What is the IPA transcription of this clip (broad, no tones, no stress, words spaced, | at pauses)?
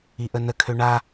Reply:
iʔənəkʰø ɳa